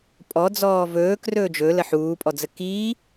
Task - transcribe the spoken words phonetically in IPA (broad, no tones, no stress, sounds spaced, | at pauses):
pʼ ɔ d͡z ɔː v ɵː k r ɵː d͡ʒ ɵ l ə ħ uː pʼ ɔ d͡z ə k i